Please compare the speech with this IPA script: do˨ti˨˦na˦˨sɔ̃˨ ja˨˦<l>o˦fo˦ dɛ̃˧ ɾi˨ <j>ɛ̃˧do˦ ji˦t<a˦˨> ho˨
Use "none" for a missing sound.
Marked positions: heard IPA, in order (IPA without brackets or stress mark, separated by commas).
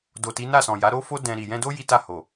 ɾ, j, a˦˨